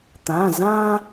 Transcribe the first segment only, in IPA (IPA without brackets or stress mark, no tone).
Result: t̪